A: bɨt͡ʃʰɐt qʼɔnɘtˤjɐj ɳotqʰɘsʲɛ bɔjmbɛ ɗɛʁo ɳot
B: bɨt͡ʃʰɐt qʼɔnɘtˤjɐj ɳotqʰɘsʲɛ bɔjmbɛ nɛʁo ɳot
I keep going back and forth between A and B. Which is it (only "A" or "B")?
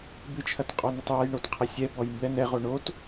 B